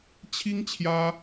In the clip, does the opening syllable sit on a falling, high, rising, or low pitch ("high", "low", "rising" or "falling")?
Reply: high